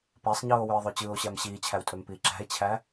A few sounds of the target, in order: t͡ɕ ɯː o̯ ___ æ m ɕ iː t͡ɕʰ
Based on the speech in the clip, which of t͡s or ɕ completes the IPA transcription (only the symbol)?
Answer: ɕ